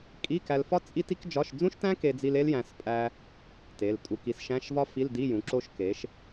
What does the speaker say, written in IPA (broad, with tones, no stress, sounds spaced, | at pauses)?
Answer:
kʼ i˧˥˧ k æ˧ l f ɒ˥ t͡sʼ i˥ t i˥ k d͡ʒ ɒ˧˥˧ ʃ d͡z ũ˥ ʃ t æ̃˥ k e˧ d͡z i˧ l e˥ l j æ̃˧ s pʼ æ˧ | t e˩˧˩ l tʼ u˧ k i˩˥ s ʃ æ̃˧˥˧ ʃ v ɒ˥ f i˧˥˧ l d i˧˥˧ j ũ˩˥ ǁ o˥ ʃ k e˩˥ ʃ